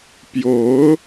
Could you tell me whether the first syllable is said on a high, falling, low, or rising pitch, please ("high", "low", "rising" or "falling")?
rising